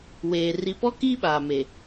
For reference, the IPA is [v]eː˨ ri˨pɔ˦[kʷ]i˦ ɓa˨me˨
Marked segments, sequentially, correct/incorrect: incorrect, incorrect

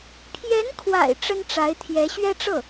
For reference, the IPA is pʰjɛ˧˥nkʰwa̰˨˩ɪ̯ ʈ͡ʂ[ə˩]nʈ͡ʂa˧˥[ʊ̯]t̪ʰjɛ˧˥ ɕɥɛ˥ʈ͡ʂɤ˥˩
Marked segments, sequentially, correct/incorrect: incorrect, incorrect

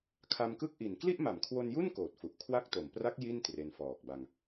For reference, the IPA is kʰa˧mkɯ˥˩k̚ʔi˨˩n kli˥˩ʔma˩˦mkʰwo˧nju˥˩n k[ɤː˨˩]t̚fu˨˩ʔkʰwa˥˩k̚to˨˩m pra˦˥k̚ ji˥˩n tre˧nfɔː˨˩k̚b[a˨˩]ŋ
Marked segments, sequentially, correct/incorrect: incorrect, incorrect

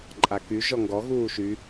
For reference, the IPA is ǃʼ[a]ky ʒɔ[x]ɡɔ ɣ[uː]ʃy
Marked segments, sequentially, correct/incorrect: correct, incorrect, correct

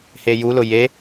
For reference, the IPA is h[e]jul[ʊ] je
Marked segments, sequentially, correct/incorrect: correct, correct

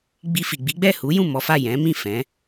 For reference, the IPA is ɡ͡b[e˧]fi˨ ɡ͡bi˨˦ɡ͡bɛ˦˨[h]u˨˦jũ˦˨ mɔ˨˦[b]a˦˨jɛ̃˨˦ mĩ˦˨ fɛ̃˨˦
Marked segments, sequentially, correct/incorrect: incorrect, correct, incorrect

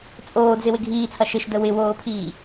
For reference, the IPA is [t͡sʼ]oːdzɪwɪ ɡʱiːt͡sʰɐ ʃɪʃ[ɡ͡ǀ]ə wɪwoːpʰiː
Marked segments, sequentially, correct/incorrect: correct, incorrect

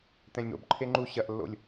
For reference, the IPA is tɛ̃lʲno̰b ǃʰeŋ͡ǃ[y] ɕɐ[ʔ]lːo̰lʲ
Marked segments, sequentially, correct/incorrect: incorrect, correct

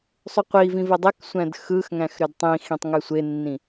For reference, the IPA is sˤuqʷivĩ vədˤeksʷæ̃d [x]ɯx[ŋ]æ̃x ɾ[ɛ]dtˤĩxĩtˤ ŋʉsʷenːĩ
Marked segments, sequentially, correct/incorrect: correct, correct, incorrect

